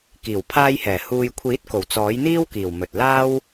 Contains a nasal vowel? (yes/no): no